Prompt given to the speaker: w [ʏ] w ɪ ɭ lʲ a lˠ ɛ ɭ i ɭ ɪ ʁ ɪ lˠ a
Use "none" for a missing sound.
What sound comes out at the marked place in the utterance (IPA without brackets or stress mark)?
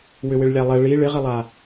ʏ